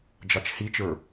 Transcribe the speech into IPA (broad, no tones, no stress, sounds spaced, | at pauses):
d͡ʒ ɑ t͡ʃ h i t͡ʃ ə˞